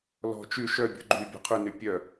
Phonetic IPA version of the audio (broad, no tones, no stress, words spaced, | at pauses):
lɔ̤ t͡ʃy ʃœbʲṳ ɡ͡ǃy bʲɔ̤qʰʉny pʲœ